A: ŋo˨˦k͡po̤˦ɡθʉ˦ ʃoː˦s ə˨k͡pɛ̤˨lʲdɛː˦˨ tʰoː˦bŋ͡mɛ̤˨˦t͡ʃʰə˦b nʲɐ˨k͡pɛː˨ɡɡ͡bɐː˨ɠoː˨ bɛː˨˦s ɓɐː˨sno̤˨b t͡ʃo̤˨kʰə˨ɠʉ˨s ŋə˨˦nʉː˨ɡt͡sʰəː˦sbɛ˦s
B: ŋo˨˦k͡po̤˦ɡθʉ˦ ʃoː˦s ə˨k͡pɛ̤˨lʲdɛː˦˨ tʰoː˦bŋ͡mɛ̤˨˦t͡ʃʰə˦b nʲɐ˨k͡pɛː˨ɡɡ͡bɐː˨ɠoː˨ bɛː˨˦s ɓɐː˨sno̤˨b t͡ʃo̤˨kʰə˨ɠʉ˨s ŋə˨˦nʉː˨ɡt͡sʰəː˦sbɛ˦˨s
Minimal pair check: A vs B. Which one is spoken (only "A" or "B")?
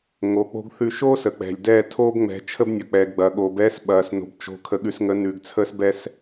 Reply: A